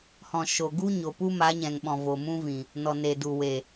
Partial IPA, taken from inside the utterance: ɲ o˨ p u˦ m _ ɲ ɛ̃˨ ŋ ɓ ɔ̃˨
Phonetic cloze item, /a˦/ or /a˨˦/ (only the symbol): a˨˦